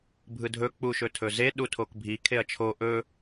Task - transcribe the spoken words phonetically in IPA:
bʱ ɯ dʱ ɵ k͡p u ʃ ɵ tʰ ɵ z e ɗ u tʰ o k bʱ i kʰ e ɐ̯ t͡ʃʰ o ʔ ɵ

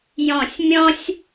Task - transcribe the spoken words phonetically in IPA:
j ɔ̃˧˩ sʲ mʲ ɔ̃˥ sʲ

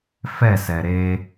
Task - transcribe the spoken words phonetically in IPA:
f ɛ s ɛ ɾ e

